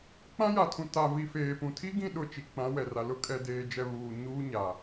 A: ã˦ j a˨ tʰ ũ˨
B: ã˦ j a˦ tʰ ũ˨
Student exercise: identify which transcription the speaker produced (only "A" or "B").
A